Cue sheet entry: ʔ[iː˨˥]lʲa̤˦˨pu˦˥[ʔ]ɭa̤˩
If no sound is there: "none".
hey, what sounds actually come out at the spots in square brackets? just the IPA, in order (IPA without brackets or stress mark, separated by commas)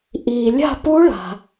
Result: iː˩, none